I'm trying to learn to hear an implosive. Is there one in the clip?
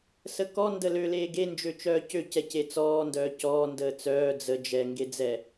no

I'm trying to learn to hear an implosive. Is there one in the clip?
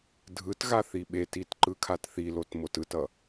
yes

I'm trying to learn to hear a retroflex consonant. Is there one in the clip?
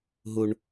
yes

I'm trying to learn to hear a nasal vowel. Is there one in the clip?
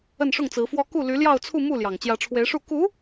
no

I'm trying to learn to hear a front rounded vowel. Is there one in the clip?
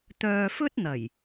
yes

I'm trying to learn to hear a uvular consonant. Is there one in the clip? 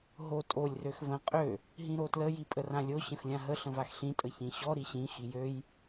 yes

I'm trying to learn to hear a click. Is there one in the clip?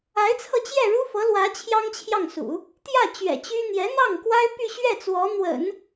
no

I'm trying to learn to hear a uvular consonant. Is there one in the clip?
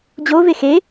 no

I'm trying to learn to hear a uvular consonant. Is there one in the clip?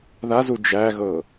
no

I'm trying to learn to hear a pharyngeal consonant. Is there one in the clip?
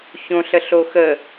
no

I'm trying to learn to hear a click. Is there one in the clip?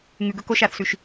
no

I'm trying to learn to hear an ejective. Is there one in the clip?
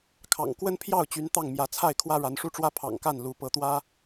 no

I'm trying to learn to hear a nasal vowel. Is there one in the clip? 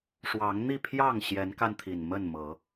no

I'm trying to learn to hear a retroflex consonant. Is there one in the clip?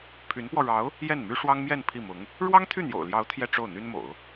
yes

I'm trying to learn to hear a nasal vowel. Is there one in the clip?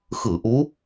no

